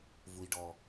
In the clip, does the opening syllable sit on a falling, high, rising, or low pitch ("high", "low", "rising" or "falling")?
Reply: high